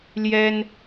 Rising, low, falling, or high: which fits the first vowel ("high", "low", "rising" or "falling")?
high